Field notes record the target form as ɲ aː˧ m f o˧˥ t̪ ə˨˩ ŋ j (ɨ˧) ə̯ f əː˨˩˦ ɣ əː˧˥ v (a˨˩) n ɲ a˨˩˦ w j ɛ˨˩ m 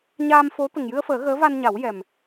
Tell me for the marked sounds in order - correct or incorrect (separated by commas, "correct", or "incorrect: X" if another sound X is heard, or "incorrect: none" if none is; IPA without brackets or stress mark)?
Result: correct, incorrect: a˧